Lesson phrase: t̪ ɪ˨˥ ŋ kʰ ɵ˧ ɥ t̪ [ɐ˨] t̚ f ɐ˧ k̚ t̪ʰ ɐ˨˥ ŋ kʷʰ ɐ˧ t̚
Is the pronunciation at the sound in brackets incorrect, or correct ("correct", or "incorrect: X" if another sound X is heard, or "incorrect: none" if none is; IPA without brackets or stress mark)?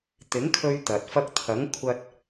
correct